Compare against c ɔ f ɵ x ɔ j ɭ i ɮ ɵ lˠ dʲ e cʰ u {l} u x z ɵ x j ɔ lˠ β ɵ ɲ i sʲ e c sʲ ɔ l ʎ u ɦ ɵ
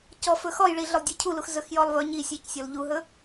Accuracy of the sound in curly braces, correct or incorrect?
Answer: correct